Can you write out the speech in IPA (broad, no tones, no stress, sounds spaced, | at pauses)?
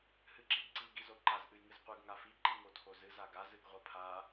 h ɨ ǁ i ɡ ǀ i ɡ i z o ǃ a z ʔ ɨ j ŋ ɨ z qʷ ɨ ɡ ŋ a f i ǃ i ŋ o tʰ o z ɨ z a ɡ a z ɨ ɡ ʁʷ a pʰ a